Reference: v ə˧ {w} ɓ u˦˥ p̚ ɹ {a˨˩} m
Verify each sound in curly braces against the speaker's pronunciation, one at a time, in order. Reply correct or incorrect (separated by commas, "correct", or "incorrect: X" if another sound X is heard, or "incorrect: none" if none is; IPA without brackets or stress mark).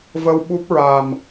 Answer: correct, correct